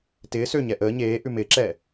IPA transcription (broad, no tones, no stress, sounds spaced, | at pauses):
t ɪː s ø ɲ ɛ ʔ əː ɲ eː ʔ ʉ m ɪː ǁ ɛː